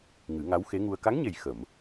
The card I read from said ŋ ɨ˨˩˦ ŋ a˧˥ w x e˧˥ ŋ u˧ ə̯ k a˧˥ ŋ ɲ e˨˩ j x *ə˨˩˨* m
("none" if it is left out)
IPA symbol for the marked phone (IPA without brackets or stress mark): ə˨˩˨